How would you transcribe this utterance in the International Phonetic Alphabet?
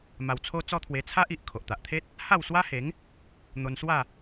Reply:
m a˧ w t͡sʰ o˦ t͡s ɔ˦ t̪ʰ w e˧ t͡sʰ a˦ ʔ i˨ ʔ kʰ o˨ ʔ t̪ a˨ ʔ t̪ʰ e˦ t̚ | h a˥˧ w s w a˦ h e˨˦ ŋ | n̪ o˧ n s w a˥˧

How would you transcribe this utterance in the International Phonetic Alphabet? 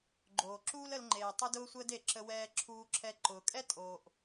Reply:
ɡ͡ǃ oː˩ ǁ uː˥ l ə˧ l ŋ͡ǃ eː˩ tˤ ʊ˥ d ʊː˥ sʷ əː˥ d e˩ ǁ ə˧ w ɛː˧ ǁʰ uː˧ ǁʰ ɛ˧ ǃ ʊː˩ kʼ ɛ˥ tʼ oː˩ ʔ

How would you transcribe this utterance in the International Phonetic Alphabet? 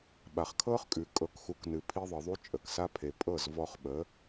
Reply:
ɓ a˨ χ kʰ ɤ˦ χ kʼ ʉ˨ kʼ ɤ˨˦ k x u˨˦ k n ɨ˨ pʰ i˧ ðˤ ɨ˨ ðˤ u˧ t͡ʃʼ ə˨ k s a˦ pʰ e˨ pʼ ɤ˦˨ z v ɔ˧ χ ɓ ə˨˦

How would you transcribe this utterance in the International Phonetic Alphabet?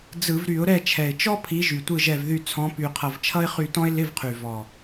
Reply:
d͡z ɯ˧˩˧ v ɾ y˧˩˧ ʊ̯ ɾ ɛ˦˨ t͡ʃʰ ɛ˨˩ ɪ̯ t͡ʃ ɔ˥ pʰ i˨˦ ʒ y˨˩ tʷ ɯ˦˨ ʒ ɛ˦˨ v ð y˦˨ t͡sʰ ɔ̃˨˦ p y˨˩ qʰ ʌ˨˩ v t͡ʃʰ ʌ˥ ɪ̯ χ y˦˨ t ɔ̃˥ ɪ̯ l ɪ˧˥˧ v qʰ y˨˩ v ɔ˨˩

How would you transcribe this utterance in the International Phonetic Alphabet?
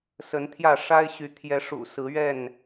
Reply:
s ə˨˦ n t̪ʰ j ä˥˨ ʂ a˦ ɪ̯ ɕ y˨˦ t̪ʰ j ɛ˨˦ ʂ ṵ˨˩ s ɹ̩˨˦ ɥ ɛ˥˨ n

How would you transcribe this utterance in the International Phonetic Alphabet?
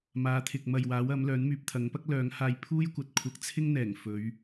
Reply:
m aː˨˧ t̪ʰ ɪ˨ k̚ m ɐ˨ j w aː˨˥ w ɐ˨˥ m l œː˨˥ n m yː˨ p̚ t̪ʰ ɐ˨˥ ŋ p ɐ˥ k̚ l œː˨˧ ŋ h aː˧ j pʰ uː˥ j kʷ ɐ˨ t̚ kʷʰ ɐ˧ k̚ t͡sʰ ɪ˥ ŋ n̪ ɛː˨˩ ŋ f ɵ˨˧ ɥ

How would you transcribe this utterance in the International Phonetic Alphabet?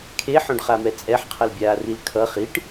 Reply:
kʰ e ħ õ ɖ χ a m ɛ t͡sʼ ɛ ħ qʰ ʌ l bʲ aː r i l kʰ ʌ χ i ʈ

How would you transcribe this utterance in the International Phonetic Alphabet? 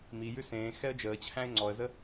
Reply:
m i j ʉ s ẽː x ɛ ə̯ d͡ʒ əː t͡ɕʰ æ̃ ɪ̯ ŋ͡ǀ ɔ ə̯ z ə

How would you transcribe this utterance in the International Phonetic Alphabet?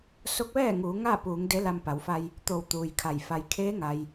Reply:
s o˧˥ k̚ ʋ ɛː˥˨ ŋ uː˩˧ ŋ a˥˨ p uː˩˧ ŋ d e˧˥ l a˧ m p a˩˧ w f a˧ j | t̪ o˧˩ w t̪ uː˩ j kʰ a˧˩ j f a˩ j kʰ eː˧˥ ŋ a˩ j

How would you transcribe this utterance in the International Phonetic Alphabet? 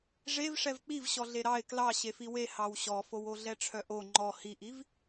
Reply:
ʐ e v ʂ ɛ v k͡p i v ɕ ɔ ɮ e ɾ ɑ ɪ̯ k l ɑ ɕ e f i w e h ɑ w ɕ ɔ f o w o ɮ ɛ ʈ͡ʂʰ œ ʔ o ŋ͡ǃ ɔ h i ʔ i v

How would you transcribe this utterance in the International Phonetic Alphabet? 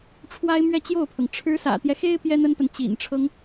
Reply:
ʈ͡ʂʰ w a˥ ɪ̯ m ɥ ɛ˥˧ t͡ɕ j o˥˩ ʊ̯ pʰ ɤ˩ ŋ ʈ͡ʂʰ ɻ̩˧˥ s ä̰˨˩ t̪ j ɛ˦ x e˥ ɪ̯ p j ɛ˥ n̪ ə˥ n p ə˨ n t͡ɕ ḭ˨˩ n ʈ͡ʂʰ ɤ˦ ŋ

